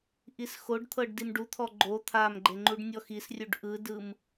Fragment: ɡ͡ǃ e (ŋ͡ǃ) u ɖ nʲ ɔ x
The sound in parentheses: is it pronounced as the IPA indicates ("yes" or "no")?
yes